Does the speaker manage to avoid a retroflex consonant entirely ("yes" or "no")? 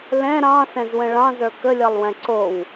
no